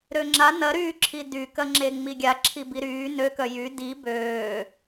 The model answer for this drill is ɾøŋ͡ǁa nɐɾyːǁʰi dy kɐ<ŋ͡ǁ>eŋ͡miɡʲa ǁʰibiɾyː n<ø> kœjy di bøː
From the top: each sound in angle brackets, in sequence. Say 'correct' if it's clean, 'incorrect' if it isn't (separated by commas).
correct, correct